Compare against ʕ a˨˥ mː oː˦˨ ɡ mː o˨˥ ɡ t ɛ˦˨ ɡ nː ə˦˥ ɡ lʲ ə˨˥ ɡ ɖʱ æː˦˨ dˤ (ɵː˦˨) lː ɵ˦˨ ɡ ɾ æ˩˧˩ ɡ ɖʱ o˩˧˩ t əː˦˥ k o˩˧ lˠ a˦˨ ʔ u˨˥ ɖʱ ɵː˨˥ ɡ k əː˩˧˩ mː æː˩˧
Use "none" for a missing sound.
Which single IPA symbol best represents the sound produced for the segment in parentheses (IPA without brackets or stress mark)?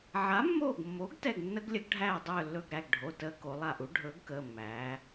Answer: ɵː˦˨